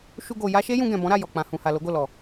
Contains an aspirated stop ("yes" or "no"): no